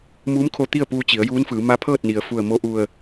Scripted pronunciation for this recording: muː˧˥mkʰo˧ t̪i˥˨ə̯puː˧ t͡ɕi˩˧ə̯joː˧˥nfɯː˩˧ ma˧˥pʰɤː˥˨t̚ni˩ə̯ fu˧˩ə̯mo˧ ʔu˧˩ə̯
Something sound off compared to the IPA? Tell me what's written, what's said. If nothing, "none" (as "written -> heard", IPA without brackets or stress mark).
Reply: oː˧˥ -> uː˧˥